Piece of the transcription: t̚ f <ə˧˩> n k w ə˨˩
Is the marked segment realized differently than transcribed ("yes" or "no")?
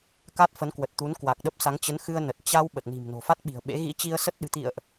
yes